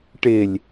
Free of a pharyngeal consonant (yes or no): yes